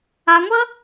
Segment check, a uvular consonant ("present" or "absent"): absent